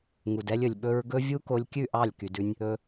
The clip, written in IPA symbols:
ŋu˨dɛ˧lʲɵ˨lʲ ɓɵ˧ɹ ɡɵ˦ vʲu˦ko˧lʲkʲʉ˦˨ʔɑ˦˨lʲ ky˧dʉ˦nʲ | ɵ˧

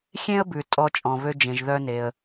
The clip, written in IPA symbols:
xʲẽ˥ə̯bʉ˩ tʼɔ˧t͡ʃʼɔ̃˩vø˧ d͡ʒẽ˩ʒðœ˧ne˩ə̯

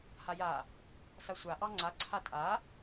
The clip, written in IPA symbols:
haja | sasʷa ʔɑŋ͡ǀa ǀʰatʼa

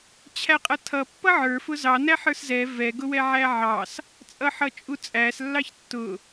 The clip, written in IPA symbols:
t͡ɕʰæqʼʌtʰʌ pːʌʕə˞ fʊzɑ næħə˞szɛ vɛ ɡʊwɛʕæʕɑs | t͡sʼʌħʌt͡ʃʼut͡sʼæs lːɑçtːʊ

